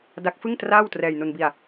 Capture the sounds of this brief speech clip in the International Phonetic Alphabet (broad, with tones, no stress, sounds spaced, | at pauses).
d a˦˥ k̚ f ɯ˥˩ ŋ t r aː˥˩ w t r ɛː˧ j n u˧ n b i˧ a̯